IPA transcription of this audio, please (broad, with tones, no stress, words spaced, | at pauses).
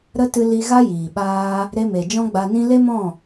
ɾə˦tɨ˧ li˧ɣa˦jiː˨ɓaː˧ | ɾe˧me˨ d͡ʒɔ̃˦ɡ͡ba˧nĩ˦ le˦mɔ̃˦˨